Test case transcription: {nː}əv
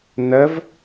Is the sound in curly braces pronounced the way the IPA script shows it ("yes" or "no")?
no